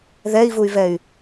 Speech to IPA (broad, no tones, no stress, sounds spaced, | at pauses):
ð ɛ i̯ v u y̯ v ɛ y̯